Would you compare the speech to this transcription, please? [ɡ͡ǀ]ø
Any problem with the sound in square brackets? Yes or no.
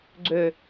no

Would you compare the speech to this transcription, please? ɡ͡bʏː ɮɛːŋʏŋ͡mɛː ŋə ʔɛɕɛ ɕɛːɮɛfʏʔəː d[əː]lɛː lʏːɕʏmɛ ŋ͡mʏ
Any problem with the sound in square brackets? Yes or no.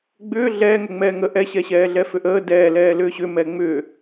yes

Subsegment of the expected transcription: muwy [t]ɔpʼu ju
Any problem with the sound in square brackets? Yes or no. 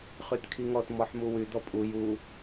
yes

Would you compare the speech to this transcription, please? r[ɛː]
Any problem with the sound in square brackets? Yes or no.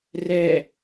no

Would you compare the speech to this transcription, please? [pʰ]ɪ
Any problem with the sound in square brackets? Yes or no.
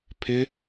no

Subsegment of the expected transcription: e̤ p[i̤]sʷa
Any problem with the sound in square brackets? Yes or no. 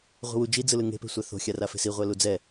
yes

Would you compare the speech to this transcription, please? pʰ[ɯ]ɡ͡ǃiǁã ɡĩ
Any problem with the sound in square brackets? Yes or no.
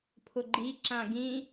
yes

